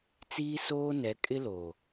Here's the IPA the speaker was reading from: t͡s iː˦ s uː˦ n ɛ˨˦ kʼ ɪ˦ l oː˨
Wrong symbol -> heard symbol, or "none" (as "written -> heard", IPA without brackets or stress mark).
uː˦ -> oː˦